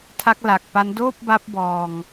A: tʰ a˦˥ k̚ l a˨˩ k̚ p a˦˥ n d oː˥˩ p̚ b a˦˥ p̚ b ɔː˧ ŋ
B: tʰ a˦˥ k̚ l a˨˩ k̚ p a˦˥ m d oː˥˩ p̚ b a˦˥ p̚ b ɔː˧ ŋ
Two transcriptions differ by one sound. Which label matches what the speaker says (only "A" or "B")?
A